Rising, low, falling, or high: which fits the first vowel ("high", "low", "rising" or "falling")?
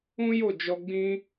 high